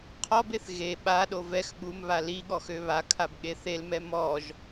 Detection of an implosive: present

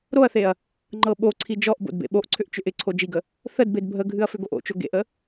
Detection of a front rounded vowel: present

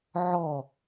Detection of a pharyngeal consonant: present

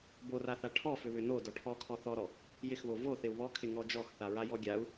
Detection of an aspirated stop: present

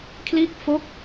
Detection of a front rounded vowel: absent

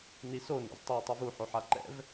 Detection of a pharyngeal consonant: present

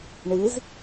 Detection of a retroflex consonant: present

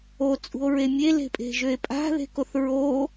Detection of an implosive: absent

